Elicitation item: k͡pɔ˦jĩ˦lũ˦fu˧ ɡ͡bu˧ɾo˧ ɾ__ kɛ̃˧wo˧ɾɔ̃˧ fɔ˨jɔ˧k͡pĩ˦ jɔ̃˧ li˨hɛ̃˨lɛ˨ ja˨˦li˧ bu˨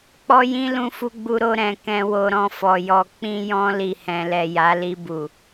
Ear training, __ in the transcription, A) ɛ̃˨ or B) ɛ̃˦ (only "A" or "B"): A